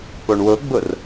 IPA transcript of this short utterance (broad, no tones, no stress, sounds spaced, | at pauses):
p o ɳ w ʊ ɡ͡b ʊ r